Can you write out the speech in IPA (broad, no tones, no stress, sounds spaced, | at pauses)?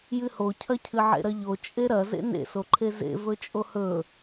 j ɨ h o cʰ ɐ cʰ ɨ ʕ ḛ ɾ ɐ ʎ o t͡ʃʼ e ɾ ɐ z ḛ n ḛ s o ǃʰ e z ḛ v ɵ t͡ʃʼ o h ɵ